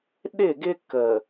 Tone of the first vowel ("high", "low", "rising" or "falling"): falling